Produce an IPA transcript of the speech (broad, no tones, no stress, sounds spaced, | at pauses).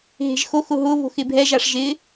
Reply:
ɦ e̤ ʒ x o x ʊ ɦ ʊ β o̤ x ɪ bʱ ɛ ʒ a ʂ ʒ ɪ